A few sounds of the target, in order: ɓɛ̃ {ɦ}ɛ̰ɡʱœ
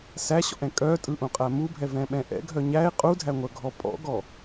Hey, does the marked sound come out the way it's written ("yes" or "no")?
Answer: no